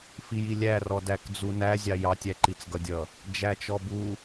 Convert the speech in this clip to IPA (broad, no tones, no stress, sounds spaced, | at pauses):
f i j i lʲ æ r ɔ d æ k d͡z u n æ zʲ ɑ j ɑ tʲ æ ǃ i t͡s ɡ ʌ dʲ ʌ | d͡ʒ æ t͡ʃ ɔ b u